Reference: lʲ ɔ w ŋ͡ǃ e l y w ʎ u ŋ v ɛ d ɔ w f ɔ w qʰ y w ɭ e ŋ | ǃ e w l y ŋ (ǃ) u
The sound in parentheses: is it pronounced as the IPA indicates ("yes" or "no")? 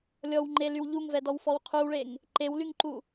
yes